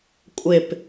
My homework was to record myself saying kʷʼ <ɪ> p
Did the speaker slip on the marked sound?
no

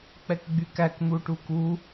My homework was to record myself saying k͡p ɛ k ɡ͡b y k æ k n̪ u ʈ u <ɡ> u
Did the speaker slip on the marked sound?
yes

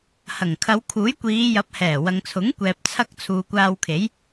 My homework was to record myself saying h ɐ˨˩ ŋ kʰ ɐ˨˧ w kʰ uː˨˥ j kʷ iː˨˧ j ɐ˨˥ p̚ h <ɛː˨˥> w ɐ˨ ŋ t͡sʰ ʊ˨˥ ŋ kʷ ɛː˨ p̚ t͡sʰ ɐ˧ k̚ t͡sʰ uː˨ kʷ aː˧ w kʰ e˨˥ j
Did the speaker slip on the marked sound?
yes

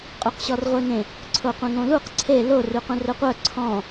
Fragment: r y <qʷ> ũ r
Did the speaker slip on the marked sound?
yes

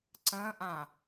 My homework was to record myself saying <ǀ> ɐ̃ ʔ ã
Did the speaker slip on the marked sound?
no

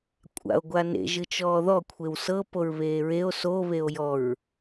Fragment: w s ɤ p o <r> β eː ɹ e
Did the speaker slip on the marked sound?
yes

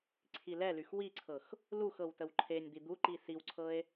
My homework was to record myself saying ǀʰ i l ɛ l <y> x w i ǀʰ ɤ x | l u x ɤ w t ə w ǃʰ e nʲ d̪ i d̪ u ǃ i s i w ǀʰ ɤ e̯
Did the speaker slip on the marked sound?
no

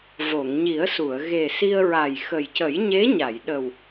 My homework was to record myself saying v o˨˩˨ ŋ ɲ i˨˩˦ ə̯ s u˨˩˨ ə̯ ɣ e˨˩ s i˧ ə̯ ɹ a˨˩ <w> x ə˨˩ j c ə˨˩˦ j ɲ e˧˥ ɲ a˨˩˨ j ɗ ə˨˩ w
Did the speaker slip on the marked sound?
yes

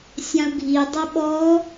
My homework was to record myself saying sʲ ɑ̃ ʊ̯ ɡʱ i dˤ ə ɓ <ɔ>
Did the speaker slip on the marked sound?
no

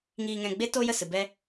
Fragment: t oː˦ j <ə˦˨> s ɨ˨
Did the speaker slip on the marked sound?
no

